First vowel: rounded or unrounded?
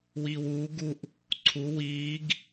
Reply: unrounded